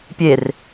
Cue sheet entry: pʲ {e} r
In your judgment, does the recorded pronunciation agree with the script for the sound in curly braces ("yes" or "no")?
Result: yes